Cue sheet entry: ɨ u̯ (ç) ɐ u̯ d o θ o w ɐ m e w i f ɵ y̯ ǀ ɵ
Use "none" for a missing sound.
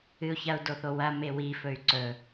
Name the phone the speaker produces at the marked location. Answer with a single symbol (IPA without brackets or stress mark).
ç